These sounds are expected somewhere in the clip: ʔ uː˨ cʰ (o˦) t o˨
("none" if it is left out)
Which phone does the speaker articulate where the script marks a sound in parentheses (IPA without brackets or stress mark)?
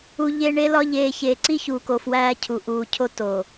o˦